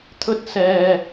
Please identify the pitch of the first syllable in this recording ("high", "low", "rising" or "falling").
high